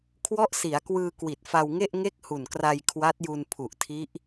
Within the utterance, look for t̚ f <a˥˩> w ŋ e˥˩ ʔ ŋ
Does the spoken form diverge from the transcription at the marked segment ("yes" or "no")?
yes